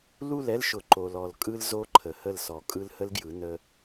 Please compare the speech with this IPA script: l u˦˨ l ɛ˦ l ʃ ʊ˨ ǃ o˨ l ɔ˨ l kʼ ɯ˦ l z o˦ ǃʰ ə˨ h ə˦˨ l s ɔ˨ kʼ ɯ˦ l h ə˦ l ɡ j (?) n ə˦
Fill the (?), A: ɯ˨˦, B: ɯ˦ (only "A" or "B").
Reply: A